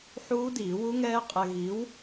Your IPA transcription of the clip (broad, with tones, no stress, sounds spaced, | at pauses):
ħ uː˦˥ d iː˨˩˦ w u˦˥ ŋ ɛː˦˥ qʼ ɛ˧ ɣ i˨˥ w